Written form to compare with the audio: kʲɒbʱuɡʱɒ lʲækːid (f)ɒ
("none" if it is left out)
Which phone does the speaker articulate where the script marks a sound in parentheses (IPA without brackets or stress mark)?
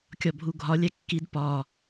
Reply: p